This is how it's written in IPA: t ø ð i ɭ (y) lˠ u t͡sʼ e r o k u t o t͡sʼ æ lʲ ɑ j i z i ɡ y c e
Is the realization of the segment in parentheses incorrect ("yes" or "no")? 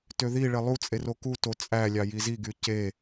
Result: yes